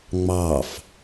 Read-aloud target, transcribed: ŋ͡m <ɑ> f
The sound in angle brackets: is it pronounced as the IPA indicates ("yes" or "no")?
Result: yes